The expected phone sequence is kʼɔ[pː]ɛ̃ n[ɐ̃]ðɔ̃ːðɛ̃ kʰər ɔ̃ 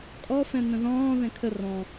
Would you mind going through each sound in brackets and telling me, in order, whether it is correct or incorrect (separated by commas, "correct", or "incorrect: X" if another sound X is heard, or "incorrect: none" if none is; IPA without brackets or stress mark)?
incorrect: f, incorrect: ə̃